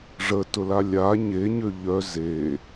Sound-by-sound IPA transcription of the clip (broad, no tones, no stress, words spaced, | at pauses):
ʐə tʊlalʲa ɲeɲø ʎœ ze